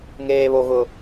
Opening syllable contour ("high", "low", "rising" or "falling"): low